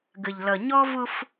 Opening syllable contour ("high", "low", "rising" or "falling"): low